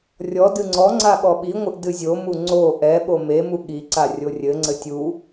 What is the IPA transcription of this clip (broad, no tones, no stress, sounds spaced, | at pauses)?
rʲ ɔ d ɨ ŋ͡ǀ ɔ ŋ͡ǀ a ɠ ɔ ɓ i ŋʷ ɨ ʔ d ɨ zʲ o m u ŋ͡ǀ o ʔ ɛ ɓ o m e m u ɠ i ǀ a rʲ o rʲ ɘ ŋ͡ǀ ɘ tʲ u